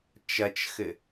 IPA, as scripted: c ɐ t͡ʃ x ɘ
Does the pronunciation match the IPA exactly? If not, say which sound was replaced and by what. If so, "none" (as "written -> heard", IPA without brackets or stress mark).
c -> t͡ʃ